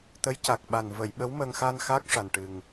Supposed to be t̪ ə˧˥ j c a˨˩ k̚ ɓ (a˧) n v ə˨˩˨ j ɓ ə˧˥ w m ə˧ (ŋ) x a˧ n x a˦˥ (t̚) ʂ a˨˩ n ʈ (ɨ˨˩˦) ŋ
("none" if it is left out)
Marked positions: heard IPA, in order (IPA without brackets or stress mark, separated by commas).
a˨˩, ŋ, k̚, ɨ˨˩